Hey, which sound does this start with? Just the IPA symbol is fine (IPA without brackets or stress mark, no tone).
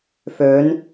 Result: f